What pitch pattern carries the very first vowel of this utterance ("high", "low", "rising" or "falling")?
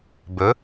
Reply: rising